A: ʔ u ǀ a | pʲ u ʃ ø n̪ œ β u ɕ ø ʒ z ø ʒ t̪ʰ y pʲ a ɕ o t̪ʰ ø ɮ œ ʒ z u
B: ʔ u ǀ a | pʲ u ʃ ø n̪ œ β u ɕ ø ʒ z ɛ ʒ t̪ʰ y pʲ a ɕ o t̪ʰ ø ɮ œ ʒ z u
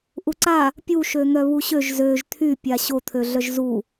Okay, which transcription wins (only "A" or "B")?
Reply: A